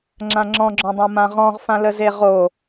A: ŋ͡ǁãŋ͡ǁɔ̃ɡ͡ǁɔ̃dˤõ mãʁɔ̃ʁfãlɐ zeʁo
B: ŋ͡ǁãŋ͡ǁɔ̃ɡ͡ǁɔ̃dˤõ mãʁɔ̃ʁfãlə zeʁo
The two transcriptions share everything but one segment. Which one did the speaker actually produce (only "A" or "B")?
B